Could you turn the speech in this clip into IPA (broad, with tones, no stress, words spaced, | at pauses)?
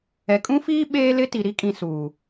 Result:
ɛ˨kʼũ˦fiː˦ ɓeː˦lɪ˦ ti˨ɾi˦kʼĩ˨ suː˨